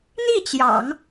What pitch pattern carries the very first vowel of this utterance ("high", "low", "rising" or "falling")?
falling